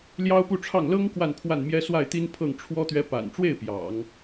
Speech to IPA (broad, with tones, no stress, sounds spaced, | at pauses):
l j ɑ˥ ʊ̯ p u˥˧ ʈ͡ʂʰ ɑ˥˩ ŋ l ɤ˥ ŋ k w a˥˧ n pʰ w a˥˩ n m j ɛ˥ s w a˥˩ ɪ̯ t̪ i˥ n pʰ ɤ˥˩ ŋ ʈ͡ʂʰ w ɔ˥ t̪ ɥ ɛ˧˥ p a̰˨˩ n ʈ͡ʂ w e˥˩ ɪ̯ p j ɑ̰˨˩˦ ŋ